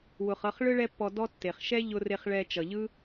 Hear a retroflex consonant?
yes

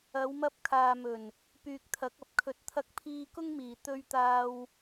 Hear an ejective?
no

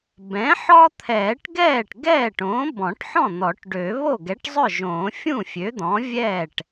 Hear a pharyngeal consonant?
yes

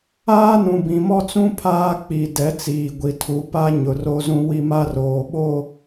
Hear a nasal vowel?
yes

